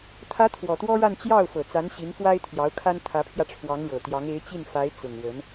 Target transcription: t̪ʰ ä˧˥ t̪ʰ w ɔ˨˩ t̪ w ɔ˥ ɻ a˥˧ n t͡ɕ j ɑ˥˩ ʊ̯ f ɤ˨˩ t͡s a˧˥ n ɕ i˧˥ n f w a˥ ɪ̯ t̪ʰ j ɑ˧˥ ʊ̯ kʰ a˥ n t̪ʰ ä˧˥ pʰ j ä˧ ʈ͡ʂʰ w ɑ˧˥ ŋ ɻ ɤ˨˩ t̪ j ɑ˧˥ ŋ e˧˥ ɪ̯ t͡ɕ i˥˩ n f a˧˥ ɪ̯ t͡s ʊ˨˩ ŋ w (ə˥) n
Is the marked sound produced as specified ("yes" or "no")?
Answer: no